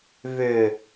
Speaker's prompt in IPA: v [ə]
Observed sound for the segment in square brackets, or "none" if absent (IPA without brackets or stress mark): ʏ